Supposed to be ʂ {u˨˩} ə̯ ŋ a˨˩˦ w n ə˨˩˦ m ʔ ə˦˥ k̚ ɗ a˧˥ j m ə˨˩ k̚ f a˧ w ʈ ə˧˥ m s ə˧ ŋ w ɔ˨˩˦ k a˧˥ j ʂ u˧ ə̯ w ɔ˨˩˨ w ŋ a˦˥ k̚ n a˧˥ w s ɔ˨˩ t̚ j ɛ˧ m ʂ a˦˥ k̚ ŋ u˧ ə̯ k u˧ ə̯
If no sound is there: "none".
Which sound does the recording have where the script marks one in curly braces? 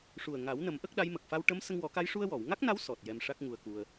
u˨˩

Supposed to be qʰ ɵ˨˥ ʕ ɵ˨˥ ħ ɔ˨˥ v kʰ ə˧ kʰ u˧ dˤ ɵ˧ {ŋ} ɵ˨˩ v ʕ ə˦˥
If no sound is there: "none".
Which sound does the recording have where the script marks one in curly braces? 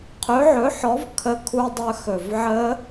x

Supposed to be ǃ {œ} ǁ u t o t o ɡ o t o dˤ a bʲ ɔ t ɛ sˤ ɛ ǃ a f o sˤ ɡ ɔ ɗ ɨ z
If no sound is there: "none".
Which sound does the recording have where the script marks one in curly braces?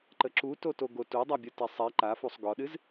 ə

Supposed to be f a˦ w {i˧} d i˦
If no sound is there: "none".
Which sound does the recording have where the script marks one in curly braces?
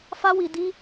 i˧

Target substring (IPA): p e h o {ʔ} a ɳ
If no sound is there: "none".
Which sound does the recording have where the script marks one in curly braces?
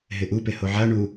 ʕ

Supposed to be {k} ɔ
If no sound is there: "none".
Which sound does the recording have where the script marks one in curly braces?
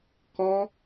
k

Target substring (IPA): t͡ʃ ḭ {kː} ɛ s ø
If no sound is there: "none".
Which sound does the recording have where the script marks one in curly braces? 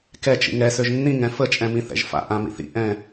ŋ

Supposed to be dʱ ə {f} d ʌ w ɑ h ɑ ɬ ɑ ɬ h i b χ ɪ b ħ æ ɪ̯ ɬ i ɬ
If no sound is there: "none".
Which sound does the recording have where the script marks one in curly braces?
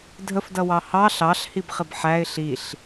f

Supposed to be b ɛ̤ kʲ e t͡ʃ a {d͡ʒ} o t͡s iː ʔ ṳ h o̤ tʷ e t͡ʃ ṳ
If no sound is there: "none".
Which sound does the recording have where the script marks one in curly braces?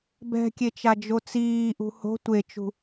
d͡ʒ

